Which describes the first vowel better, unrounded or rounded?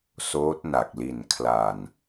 rounded